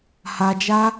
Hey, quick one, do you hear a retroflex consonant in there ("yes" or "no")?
no